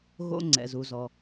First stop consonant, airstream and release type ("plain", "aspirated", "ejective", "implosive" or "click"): click